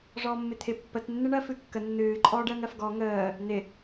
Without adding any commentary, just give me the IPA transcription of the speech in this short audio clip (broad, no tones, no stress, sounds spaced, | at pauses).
ʐ ɔː mː ɪ t̪ʰ ɪ pː ə t nː ɨ ɳ ɜ f ɨ kː ə nː ɨː ǃʼ ɔː ɖ əː ŋ ɜ f ɡ ɔ ŋ əː | n̪ ɪ